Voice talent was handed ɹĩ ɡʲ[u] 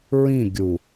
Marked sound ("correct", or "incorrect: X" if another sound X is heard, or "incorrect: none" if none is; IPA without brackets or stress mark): correct